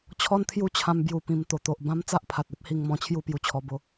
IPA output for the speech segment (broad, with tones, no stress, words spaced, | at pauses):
t͡ɕʰɔ˦nt̪ʰju˦ t͡ɕʰã˦mbju˧pĩ˧m t̪o˨˩t̪o˨ʔbã˦m t͡sa˦ʔpʰa˨t̚e˦p̚hi˧ŋ mɔ̃˧t͡ɕʰju˥˧pju˧t͡ɕʰɔ˧ bo˧